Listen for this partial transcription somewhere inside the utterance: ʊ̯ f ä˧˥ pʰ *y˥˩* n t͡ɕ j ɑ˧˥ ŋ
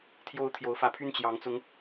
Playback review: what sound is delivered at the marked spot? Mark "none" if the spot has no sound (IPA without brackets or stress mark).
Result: y˥˩